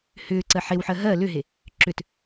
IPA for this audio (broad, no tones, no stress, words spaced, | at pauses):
hʏːǀɜ ħewħɜ ɦɜ lʏɦe | ǁʏt